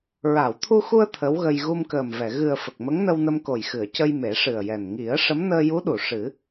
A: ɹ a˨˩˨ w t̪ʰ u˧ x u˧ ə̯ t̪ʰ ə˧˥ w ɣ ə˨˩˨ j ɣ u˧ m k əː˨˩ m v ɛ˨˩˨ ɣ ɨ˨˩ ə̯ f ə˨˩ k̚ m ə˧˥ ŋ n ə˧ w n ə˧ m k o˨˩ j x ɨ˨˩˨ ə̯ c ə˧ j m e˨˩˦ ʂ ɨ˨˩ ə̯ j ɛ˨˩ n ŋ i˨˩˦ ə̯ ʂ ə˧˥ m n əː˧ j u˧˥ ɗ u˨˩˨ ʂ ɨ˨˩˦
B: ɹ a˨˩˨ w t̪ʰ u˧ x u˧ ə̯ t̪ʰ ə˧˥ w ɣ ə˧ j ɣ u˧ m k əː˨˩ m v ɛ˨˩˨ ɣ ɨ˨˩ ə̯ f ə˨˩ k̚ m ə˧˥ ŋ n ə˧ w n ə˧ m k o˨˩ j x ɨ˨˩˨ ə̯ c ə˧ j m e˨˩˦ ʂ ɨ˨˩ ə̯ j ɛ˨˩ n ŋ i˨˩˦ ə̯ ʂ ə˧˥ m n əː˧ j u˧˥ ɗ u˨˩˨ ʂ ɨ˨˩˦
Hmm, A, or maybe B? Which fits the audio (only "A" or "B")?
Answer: B